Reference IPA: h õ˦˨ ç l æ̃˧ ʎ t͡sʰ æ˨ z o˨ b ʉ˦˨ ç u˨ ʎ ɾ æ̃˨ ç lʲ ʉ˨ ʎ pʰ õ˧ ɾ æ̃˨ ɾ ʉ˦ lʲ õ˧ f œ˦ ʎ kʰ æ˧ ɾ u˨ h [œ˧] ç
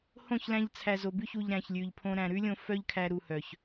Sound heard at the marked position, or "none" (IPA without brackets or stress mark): œ˨